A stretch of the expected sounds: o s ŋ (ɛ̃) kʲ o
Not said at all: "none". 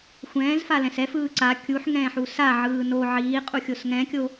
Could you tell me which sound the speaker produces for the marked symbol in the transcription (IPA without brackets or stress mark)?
ɛ̃